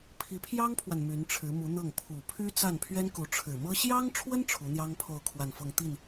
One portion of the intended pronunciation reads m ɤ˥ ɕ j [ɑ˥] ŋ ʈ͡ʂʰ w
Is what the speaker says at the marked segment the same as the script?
yes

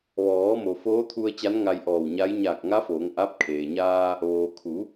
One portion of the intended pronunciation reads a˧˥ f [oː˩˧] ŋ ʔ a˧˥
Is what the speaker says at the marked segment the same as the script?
yes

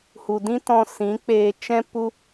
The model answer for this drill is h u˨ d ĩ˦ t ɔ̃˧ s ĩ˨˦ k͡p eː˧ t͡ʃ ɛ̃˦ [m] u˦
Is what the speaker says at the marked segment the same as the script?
no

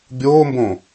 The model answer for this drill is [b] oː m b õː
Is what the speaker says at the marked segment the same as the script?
no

